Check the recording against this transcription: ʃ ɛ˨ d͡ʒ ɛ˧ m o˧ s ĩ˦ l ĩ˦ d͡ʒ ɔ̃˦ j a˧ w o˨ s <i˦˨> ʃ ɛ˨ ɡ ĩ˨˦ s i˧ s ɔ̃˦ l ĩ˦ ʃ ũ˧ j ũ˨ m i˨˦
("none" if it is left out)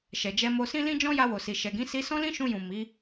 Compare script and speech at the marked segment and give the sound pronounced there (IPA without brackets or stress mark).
i˨